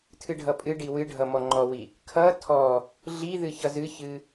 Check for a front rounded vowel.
absent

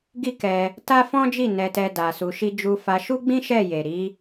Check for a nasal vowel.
present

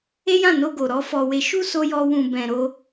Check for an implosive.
absent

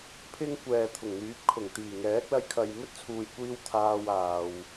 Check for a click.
absent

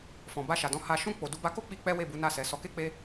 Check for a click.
absent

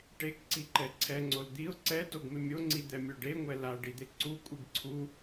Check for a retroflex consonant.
present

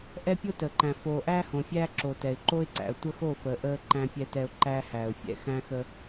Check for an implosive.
absent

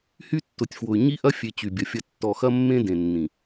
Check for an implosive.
absent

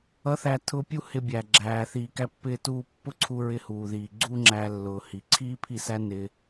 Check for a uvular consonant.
absent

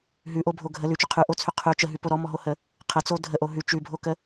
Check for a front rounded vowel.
present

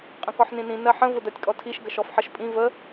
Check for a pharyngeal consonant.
present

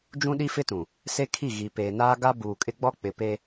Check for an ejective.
present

